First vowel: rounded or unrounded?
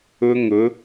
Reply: rounded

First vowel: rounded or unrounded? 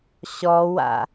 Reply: rounded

